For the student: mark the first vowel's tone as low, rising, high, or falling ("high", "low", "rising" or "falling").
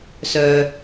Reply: low